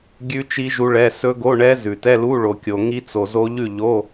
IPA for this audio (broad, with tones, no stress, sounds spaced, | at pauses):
ɡʲ ʉ˦˥ t͡ʃ i˦˥ ʒ u˦˥ ɭ ɛ˧˥˧ s ɵ˦˥ ɡ o˧˥˧ ɳ ɛ˦˥ z ʉ˨ t ɛ˧˥˧ l u˧˥˧ ɭ o˨ kʲ o˨ ŋ i˦˥ t͡s o˨ z o˦˥ ʎ ʉ˥˨ ʎ o˧˥˧